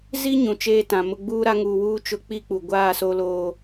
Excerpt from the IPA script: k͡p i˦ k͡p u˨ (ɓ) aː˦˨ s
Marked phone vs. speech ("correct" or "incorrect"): incorrect